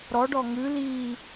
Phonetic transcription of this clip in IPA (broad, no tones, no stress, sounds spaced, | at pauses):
ɾ ɔ ɖ ɔ ŋ ʉ l i